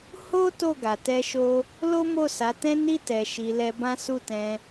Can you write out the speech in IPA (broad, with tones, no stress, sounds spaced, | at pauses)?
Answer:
h o˦ t o˦˨ ɡ a˨ t ɛ˧ ʃ o˧ | l o˦ m o˦˨ s a˨˦ t ɛ̃˦ n i˦˨ t ɛ˨ ʃ i˨ l ɛ˧ b ã˦ s u˦˨ t ɛ̃˧